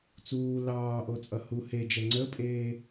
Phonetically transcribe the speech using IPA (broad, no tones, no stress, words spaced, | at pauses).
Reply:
t͡suː lɑː ʔot͡sʼʌhu hed͡ʒɛ ŋ͡ǀəpʼeː